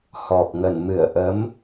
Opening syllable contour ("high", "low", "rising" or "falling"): low